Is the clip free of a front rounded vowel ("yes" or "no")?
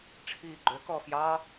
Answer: no